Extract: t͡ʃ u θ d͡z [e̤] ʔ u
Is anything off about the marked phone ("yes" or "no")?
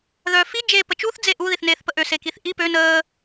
yes